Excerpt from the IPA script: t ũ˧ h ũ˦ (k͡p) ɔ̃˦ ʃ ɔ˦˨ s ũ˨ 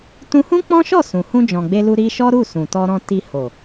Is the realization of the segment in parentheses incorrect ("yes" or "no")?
no